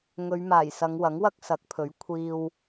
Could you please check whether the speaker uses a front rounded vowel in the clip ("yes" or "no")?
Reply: no